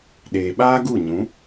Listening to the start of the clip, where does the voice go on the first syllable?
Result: low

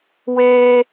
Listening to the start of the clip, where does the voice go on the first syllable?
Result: high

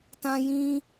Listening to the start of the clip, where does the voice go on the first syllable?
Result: high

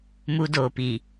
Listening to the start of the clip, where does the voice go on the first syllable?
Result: high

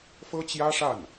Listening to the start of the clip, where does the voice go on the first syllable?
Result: high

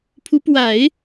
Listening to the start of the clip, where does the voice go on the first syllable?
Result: rising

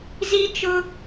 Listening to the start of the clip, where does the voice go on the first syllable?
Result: high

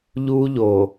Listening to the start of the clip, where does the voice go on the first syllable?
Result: high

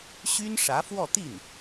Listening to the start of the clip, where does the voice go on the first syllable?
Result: high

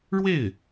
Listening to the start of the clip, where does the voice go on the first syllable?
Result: falling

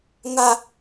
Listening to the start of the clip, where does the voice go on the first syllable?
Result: low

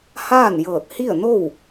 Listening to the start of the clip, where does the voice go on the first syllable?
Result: falling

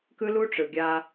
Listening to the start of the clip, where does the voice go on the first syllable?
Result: high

